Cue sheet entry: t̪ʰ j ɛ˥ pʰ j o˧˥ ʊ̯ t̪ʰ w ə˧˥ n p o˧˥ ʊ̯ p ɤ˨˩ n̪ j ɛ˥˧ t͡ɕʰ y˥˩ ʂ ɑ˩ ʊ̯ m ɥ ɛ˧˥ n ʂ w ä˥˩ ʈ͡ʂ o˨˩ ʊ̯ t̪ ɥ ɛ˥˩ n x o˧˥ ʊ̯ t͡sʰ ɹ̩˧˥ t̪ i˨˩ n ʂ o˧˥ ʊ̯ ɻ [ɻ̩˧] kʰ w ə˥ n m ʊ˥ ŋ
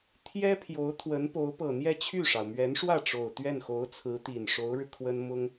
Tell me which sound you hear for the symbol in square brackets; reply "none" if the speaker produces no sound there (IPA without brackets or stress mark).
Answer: ɻ̩˧